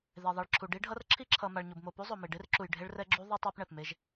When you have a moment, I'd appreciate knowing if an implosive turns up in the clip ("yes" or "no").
no